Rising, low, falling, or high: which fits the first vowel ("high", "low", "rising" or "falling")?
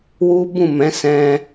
high